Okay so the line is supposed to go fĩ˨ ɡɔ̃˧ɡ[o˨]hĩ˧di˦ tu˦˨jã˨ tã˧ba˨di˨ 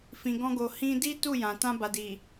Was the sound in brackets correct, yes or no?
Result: yes